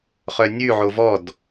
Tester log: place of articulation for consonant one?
uvular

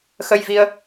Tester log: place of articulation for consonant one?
velar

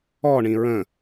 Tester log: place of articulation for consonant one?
retroflex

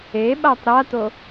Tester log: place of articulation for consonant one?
labial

